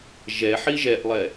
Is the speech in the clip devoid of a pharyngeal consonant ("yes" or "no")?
no